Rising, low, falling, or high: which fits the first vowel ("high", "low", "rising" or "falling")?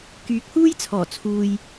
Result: rising